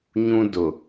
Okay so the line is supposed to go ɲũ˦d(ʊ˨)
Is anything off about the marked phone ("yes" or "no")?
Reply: no